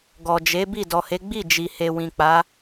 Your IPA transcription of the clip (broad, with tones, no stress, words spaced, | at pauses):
ɡɔ˨d͡ʒe˨˦bi˦˨ dɔ˨he˨˦ ɡ͡bi˦˨d͡ʒi˨he˨ wĩ˨k͡pa˨˦